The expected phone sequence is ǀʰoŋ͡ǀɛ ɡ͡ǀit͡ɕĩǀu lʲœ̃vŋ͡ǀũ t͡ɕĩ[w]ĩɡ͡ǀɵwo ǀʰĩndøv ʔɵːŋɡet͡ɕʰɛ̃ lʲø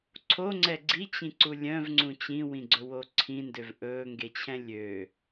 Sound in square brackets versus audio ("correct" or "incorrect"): correct